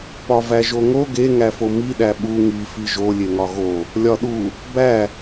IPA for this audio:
p ɒ v æ ʒ o ŋ o ɡ e ŋ æ f o m i ɗ æ ɓ u ŋ i f i ʒ o lʲ e ŋ ɒ ɣ o | lʲ ɒ ɗ u | b æ

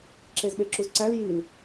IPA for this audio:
ǁ e z ɓ e ǁ u z ǀ æ l j i l

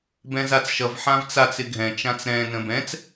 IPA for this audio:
b ɛ̃ z a t͡s ʃ ʌ v ħ ã v t͡s a t͡s ɪ ɡʱ ɛ̃ t͡ʃ ã t͡s ɾ ɛ̃ n ə̃ b ɛ̃ t͡s

